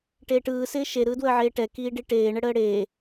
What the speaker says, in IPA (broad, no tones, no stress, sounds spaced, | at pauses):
ʈ eː ʈ ɯː s ɪː ʃ e ɾ ɯː d w əː ʕ eː ʈ ɛ k iː ɖ i ʈ eː ɳ ə ɽ əː ɽ eː